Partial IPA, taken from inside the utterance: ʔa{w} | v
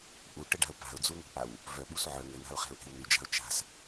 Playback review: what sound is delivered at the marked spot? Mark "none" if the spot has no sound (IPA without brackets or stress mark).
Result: w